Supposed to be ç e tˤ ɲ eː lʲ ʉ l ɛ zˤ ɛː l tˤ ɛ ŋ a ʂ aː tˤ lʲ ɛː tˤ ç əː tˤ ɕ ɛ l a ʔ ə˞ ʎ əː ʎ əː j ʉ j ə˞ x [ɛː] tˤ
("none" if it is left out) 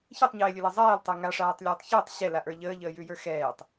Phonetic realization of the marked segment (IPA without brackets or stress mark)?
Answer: ɛː